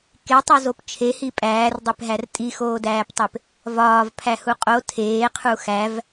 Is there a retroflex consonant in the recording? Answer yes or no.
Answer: no